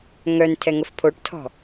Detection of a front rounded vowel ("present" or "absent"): present